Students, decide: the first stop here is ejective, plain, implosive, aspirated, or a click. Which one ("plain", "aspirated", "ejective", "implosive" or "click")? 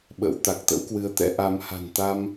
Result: implosive